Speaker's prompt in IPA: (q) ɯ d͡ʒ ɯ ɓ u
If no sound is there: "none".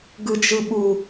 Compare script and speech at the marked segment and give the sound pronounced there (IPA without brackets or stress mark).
ɡ